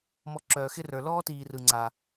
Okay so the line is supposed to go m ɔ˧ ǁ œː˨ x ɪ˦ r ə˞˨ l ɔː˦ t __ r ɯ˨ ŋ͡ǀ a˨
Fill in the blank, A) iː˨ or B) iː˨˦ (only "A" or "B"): A